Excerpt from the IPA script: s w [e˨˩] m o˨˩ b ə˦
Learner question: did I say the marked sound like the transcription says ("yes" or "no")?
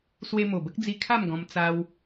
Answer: no